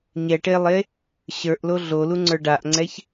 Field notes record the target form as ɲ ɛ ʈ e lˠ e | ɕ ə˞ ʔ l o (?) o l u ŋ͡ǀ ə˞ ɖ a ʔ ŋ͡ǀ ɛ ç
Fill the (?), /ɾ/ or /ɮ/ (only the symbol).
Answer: ɮ